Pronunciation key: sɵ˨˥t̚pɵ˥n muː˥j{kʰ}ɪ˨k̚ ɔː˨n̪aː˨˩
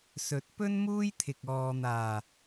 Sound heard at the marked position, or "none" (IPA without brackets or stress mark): t̪ʰ